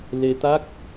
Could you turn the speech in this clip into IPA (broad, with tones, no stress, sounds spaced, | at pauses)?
l e˧ t̪ a˦˥ k̚